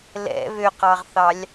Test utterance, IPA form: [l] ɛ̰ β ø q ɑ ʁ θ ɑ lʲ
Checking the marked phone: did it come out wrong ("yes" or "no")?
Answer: no